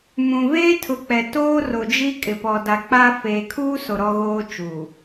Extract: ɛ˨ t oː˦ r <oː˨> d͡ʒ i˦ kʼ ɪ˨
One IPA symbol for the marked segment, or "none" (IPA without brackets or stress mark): o˨